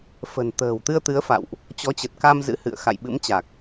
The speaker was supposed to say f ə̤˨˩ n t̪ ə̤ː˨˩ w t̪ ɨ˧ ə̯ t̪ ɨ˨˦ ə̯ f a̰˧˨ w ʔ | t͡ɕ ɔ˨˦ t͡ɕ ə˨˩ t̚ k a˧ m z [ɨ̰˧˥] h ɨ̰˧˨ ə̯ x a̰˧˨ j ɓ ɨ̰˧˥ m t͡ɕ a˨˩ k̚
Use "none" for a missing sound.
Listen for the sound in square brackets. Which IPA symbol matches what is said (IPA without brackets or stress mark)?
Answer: ɨ̰˧˥